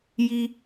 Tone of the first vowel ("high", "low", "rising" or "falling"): high